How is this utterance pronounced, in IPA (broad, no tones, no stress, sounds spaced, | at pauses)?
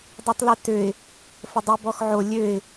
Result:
dˤ i tˤ l ɛ t ø ɪ̯ | f ə dˤ i b ɔ x ʕ o lʲ ø ɪ̯